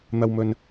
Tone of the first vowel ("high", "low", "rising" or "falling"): low